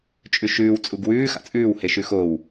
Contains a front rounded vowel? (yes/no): no